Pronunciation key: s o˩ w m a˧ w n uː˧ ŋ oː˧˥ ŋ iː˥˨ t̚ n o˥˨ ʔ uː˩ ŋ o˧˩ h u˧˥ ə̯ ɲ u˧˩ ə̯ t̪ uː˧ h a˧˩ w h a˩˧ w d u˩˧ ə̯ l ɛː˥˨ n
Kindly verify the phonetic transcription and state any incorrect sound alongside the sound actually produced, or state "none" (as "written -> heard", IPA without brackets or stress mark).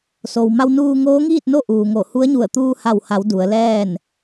none